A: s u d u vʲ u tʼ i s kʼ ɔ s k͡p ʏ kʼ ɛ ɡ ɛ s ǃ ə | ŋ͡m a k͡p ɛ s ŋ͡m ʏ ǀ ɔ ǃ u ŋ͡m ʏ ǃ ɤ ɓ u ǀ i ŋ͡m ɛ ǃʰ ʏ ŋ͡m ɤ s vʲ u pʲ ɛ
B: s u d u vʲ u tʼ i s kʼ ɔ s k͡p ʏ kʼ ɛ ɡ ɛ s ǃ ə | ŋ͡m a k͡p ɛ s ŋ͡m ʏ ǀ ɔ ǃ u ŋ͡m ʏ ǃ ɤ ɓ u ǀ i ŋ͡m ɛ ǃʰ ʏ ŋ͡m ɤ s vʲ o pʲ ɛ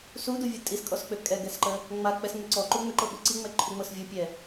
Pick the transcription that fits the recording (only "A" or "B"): A